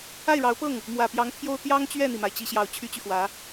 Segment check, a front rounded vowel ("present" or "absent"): present